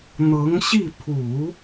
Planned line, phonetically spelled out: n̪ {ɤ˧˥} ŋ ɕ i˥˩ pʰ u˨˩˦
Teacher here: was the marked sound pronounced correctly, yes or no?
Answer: yes